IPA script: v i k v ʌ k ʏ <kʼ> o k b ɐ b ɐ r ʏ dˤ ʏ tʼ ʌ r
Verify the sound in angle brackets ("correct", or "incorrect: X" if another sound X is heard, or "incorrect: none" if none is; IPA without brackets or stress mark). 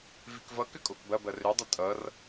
correct